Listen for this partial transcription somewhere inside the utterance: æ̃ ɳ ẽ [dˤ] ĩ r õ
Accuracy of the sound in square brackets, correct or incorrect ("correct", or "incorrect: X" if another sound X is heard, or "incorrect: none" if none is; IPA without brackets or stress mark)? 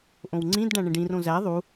incorrect: ɖ